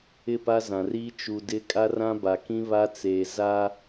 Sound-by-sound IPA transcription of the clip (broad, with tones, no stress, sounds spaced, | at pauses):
ɪ˦˨ p a˦ z ã˨ r iː˦ t͡ʃ u˨ d ɪ˦ kʼ a˦ r ã˦ b a˨ k ĩ˦ β a˦ t͡s eː˨ z a˦